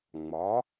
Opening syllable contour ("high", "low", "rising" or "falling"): rising